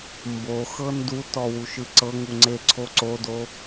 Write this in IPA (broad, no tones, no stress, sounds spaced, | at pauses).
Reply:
m b o x ɤ n d u t ɔ w u ʃ ɯ ǀ ɤ ŋ u ŋ͡ǀ e ǀʰ o ǀ o d o